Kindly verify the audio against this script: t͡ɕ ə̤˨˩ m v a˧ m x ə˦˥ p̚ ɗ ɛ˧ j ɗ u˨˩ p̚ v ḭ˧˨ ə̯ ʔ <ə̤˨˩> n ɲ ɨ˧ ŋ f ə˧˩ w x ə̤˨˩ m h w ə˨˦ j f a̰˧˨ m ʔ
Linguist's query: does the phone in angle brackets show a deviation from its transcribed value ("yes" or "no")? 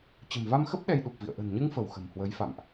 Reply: no